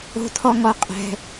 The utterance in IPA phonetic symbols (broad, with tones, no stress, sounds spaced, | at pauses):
o̤˧ tʰ ɔ˧ ŋ ɔ˧ qʼ ɛ̤˧